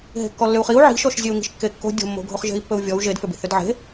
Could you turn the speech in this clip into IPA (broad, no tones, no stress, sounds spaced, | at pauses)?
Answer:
ɦ e̤ kː ɔ lː ʏ u̯ χ i u̯ ʕ i̤ ʃ ɔ ʃ zʲ e u̯ ŋ i̤ ʃ kː e kː o̤ dʲ o̤ mː o̤ ɡʱ o χ ʒ e̤ i̯ pː ɵ u̯ vʲ ɔ u̯ ʒ e d f ʏ b i̤ θ ʏ d ʕ e̤